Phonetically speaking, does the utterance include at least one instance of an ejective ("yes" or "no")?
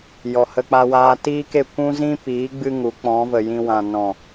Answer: no